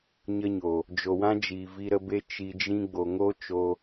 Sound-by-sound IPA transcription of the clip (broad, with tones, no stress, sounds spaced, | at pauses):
ɲ ə˦ ɲ o˨ | d͡ʒ o˨ w ã˦ d͡ʒ iː˨ v i˧ ɾ ə˧ b e˦ t͡ʃ i˧ d͡ʒ ĩ˦ ɡ͡b o˨ ŋ o˦ t͡ʃ o˧